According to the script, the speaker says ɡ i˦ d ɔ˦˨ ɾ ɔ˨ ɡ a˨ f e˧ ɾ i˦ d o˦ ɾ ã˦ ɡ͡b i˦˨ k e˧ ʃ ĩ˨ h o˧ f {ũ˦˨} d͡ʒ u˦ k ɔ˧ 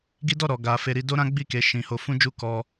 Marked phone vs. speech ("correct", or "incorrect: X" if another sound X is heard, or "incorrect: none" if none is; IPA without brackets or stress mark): incorrect: ũ˦